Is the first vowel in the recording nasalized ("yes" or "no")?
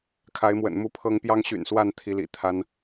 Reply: no